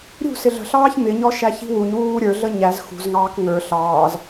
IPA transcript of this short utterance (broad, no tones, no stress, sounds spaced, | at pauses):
ɾʲ ṳ s ɪ ɮ ə̤ ɬ ɑː ç m ɪ ɲ ɔ ʃ æ ç i̤ w u ɲ w uː ɾʲ ə˞ ɮ ə ɲ æ z x ṳ z ŋ ɑː k ŋ ə˞ ɬ ɑː z